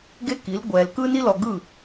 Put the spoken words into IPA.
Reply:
ɡ e˥ k i˩˥ l ɡʷ ɛ˨ l k ɯ˥ n i˥ l ɔ˨ ɡ ɯ˥˩

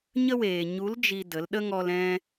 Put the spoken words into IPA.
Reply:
ɲ ə˦ w eː˨ ɲ u˨˦ l d͡ʒ i˧ d ə˨˦ l ɗ ə˦ ŋ ɔ˧ l ɛ̃˧

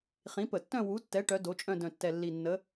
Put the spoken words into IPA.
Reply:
χ ĩ˨˥ p ə˧˩˧ tː œ̃˥˧ w u˨˥ tː ɛ˨˥ ʈ œ˨˥ d o˨˥ t͡ʃʼ œ̃˥˧ d œ̃˨˩ tː ɛ˨˩ lː i˨˩ nː ə˨˥

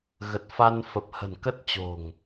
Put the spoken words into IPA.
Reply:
ɣ ə˨˩ t̚ f a˧ n f ə˨˩ p̚ h ə̤˨˩ n k ə˦˥ t̚ t͡ɕ o̤˨˩ ŋ

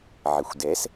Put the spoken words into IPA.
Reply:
ʕ ɪ xʷ d ɛ s

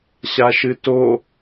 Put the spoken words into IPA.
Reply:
ɕ a ʃ ɨ t o

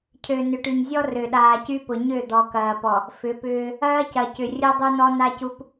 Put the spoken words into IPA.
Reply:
cʰ ø˨ n ʏ˨ ʈ y˨ ɲ zʲ ɔ˦ r ø˨ ɗ aː˨ c y˦ p ʊ˨ ɲ ø˦˨ d̪ ɔ˨ k ɐː˨ p ɔ˨ | f ʏ˨˦ p ʏː˦ | ɐː˦ c ɐ˨ c ʏ˨ rʲ ʊ˦ dˤ u˦ n ɔ˦ n a˦ c u˦ p

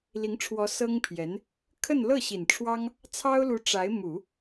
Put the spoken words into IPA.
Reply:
l i˧˥ ŋ ʈ͡ʂʰ w ɔ˧˥ s ɤ˥ ŋ pʰ j ɛ˧˥ n | kʰ ə˥˧ n l ɤ˥˩ ɕ i˨˩ n ʈ͡ʂʰ w ɑ˥ ŋ | t͡sʰ ɑ˥ ʊ̯ l u˧˥ ʈ͡ʂ a˧˥ ɪ̯ m u˨˩˦

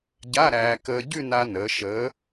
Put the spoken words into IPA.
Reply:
ɟ a˧˥˧ ɾ æː˧ k əː˧ ɟ ʉ˥˧ n a˧ n əː˩˧ ʃ əː˨˥

